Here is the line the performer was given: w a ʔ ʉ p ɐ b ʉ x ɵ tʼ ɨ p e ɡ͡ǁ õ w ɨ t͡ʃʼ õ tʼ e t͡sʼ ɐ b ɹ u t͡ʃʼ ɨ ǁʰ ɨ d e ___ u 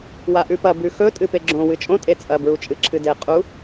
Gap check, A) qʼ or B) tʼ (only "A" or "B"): A